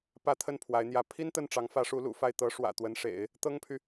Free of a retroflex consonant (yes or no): no